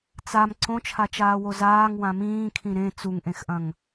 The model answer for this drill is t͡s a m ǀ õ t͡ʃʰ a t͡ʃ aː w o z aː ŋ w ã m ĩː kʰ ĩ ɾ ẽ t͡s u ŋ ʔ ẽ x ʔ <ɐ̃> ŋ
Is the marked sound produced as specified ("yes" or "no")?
yes